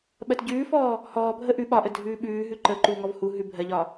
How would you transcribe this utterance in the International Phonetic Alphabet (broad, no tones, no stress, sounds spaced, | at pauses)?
ɓ ɜ t ɟ ʉː f ɔː | h ɔː bʱ ə ʔ ʉ ɓ ɒ ʔ ə dʱ ʉː ɓ ʉː ɦ ʉ ǃ ə ǃ uː ŋ ɔ v h u ɦ ʉ bʱ ɜ ʎ ɒ